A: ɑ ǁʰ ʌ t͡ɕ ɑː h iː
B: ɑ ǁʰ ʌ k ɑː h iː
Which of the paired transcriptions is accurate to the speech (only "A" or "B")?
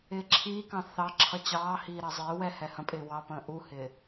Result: A